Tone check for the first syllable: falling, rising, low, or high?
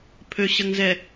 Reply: low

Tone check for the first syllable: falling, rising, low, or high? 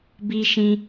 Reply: high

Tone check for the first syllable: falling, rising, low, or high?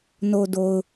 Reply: low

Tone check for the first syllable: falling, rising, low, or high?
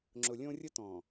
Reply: low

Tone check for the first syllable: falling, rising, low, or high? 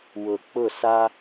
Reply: low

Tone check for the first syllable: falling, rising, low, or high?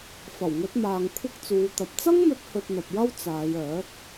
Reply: low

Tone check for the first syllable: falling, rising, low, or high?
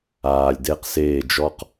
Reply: low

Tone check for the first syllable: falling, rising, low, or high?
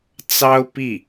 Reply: high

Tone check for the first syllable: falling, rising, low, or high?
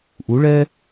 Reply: rising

